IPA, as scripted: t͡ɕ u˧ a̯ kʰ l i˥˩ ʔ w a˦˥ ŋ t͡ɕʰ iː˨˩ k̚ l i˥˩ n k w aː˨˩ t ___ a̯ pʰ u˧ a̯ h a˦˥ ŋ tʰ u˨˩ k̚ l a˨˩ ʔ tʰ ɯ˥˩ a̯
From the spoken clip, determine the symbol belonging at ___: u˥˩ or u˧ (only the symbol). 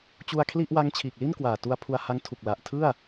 u˧